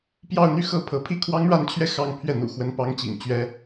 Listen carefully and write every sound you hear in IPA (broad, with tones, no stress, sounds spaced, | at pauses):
p j ɑ˥˧ ʊ̯ n̪ y˥˧ x ɤ˥˩ pʰ ɤ˧˥ pʰ i˥ kʰ w ɑ˥ ŋ ɻ a˥˧ n t͡ɕʰ ɥ ɛ˥˧ x ɑ˥˧ ŋ pʰ ɥ ɛ˥˩ n̪ ṵ˨˩ x w ə˧˥ n p ɑ˧˥ ŋ t͡ɕ ḭ˨˩ ŋ t͡ɕ ɥ ɛ˥